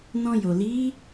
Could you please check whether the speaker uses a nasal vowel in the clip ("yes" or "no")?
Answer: yes